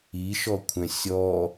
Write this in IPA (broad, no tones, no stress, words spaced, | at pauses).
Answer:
iʃɔkʷʰɛ̃ sʲɔ